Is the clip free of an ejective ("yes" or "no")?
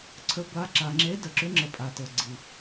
no